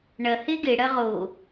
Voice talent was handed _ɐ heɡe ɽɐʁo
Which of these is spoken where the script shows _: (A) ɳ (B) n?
A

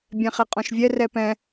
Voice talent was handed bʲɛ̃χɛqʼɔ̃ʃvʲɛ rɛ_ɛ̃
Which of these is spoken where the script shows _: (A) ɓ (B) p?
B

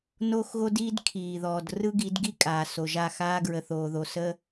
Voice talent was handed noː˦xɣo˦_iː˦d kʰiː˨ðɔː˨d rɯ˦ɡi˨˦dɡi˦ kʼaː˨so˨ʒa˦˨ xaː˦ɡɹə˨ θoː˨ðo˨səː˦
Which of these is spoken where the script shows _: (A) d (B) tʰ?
A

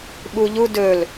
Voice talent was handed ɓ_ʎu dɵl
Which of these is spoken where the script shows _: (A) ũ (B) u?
B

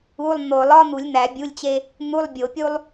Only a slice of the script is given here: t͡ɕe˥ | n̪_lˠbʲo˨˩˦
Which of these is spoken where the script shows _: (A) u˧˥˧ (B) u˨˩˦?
A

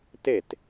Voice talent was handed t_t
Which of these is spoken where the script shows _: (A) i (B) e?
B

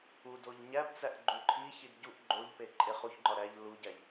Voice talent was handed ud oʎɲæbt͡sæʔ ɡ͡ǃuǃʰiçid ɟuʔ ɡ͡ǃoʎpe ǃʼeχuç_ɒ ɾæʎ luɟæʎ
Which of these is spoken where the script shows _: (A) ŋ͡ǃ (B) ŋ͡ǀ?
A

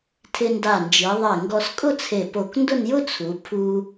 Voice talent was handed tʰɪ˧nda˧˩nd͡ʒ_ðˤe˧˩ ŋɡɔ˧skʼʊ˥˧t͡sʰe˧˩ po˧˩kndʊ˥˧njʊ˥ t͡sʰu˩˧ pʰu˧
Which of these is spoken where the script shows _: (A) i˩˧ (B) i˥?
A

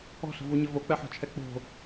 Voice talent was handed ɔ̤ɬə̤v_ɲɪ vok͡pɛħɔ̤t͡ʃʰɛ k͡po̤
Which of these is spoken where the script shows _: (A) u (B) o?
A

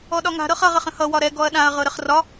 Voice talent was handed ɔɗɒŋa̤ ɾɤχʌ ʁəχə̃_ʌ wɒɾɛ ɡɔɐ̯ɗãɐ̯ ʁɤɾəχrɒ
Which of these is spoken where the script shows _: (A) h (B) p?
A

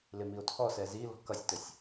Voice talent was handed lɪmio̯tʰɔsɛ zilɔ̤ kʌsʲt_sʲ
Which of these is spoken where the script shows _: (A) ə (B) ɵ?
A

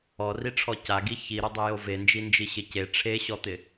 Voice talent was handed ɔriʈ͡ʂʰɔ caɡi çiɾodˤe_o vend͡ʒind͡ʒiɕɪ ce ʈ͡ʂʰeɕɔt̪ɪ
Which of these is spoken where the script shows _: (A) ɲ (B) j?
B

